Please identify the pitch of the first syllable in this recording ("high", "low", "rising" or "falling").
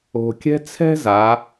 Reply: low